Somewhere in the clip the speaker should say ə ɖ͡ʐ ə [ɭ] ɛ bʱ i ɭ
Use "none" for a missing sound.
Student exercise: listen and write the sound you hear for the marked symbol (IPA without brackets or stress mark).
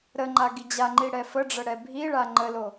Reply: ɽ